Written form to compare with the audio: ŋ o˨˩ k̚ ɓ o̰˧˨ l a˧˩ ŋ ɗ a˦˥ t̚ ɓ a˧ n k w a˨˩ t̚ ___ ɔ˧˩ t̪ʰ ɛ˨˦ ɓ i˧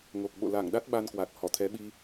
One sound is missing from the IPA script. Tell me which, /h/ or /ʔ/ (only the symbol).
h